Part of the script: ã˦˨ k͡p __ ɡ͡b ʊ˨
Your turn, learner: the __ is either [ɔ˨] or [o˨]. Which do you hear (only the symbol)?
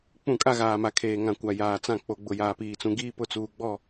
o˨